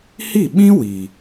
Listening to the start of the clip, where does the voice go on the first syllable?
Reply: falling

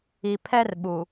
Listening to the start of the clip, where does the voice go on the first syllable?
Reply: low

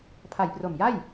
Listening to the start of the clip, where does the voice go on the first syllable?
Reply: low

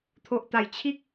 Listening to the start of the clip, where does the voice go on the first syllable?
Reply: low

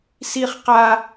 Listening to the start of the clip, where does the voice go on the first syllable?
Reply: high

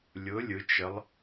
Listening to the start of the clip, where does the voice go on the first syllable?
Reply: rising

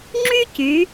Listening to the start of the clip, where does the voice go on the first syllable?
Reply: high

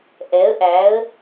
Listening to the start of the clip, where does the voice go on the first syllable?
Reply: rising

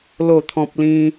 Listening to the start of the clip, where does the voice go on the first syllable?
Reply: falling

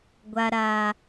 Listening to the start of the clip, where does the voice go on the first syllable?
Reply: high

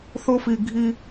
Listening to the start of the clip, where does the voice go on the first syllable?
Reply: high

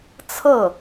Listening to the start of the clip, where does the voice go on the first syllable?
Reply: falling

